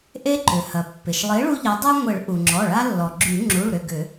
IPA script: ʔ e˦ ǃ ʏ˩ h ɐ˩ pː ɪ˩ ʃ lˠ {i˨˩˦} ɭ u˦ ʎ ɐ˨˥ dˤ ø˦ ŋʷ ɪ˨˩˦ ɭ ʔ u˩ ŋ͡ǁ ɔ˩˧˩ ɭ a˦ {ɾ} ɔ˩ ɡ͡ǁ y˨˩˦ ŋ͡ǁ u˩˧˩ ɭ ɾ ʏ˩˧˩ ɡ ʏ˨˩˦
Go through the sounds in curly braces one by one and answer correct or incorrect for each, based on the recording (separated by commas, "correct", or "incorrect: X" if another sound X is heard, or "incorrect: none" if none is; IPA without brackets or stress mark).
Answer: incorrect: i˨˥, incorrect: lː